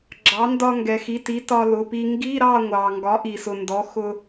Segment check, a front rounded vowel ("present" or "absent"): absent